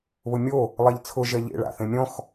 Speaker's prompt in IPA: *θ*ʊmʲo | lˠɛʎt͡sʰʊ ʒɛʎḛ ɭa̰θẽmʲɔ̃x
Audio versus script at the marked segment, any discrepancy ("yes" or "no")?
yes